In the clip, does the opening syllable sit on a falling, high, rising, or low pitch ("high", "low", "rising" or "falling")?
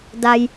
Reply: low